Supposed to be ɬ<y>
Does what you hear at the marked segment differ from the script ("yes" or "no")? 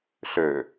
yes